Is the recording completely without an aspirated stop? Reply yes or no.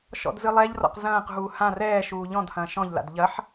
yes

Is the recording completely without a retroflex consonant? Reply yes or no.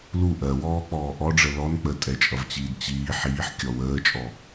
no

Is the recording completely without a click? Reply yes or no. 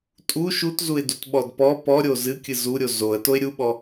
yes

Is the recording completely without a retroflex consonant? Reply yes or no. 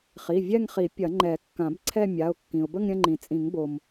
yes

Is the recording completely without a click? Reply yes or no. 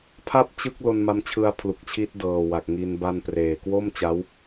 yes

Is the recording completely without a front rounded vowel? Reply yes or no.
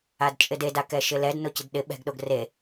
yes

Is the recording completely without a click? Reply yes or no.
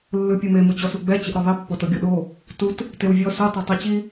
yes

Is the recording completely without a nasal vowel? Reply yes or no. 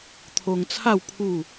yes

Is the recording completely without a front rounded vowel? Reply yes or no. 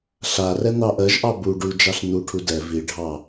yes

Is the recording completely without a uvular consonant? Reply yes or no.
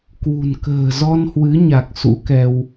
yes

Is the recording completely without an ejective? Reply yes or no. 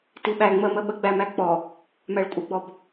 no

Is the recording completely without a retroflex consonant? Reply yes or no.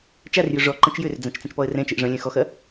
no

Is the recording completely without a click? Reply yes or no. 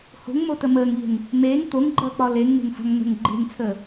no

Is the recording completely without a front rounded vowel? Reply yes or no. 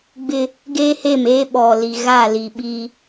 yes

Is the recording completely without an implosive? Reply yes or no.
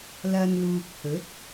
yes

